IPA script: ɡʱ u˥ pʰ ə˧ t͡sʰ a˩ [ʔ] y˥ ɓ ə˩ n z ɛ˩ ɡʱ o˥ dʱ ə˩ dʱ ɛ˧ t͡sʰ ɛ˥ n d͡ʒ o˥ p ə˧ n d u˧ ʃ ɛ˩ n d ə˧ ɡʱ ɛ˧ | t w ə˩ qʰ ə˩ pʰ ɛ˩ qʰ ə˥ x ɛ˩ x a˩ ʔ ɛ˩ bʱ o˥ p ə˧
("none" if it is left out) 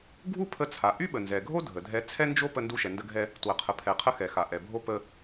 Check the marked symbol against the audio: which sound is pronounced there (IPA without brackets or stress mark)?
ʔ